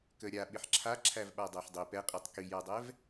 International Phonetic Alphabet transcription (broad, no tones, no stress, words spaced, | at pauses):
kə ɾʲa ɓɪħǁʰa ǁʰævɓadˤæħdˤi pɛqʼitˤ kijadˤɛv